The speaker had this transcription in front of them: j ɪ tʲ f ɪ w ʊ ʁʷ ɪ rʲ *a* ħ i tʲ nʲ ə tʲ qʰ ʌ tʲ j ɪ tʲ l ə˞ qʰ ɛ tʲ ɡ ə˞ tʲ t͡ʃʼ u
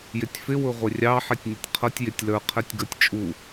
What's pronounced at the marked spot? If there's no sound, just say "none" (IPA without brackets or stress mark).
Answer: ɑ